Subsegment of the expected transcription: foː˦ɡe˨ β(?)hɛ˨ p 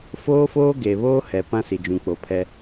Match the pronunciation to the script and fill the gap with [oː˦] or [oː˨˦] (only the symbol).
oː˦